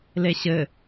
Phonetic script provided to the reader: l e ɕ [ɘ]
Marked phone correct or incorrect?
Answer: correct